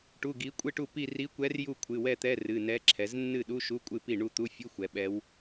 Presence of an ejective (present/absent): present